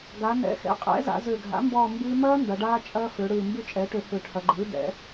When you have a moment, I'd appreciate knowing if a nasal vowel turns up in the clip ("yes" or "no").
no